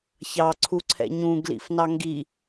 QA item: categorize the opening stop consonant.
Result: click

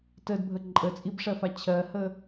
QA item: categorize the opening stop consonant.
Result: plain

